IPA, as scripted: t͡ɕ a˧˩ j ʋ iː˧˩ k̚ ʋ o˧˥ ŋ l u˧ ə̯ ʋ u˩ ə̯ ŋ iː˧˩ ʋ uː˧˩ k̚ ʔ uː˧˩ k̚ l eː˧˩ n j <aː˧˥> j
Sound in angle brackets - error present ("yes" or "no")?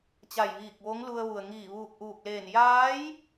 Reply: no